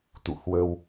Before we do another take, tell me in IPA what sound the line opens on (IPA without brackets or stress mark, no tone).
t̪